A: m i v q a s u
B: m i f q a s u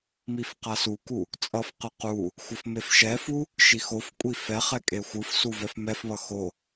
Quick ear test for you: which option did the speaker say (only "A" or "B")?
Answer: B